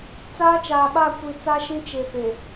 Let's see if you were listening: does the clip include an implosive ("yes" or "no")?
yes